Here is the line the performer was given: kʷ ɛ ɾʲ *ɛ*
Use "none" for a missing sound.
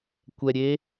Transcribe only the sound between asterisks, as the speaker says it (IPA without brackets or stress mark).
e